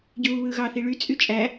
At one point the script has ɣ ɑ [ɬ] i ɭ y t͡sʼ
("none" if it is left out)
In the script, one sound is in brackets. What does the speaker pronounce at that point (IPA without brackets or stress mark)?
θ